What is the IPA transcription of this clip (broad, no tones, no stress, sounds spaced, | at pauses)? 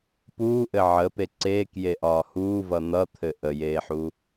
p uː ʔ ɘ ʕ ə p e ǀ eː k j e ʔ ɒː h uː v ʌ n̪ ʌ t̪ʰ ɘ ʔ ə j eː ħ u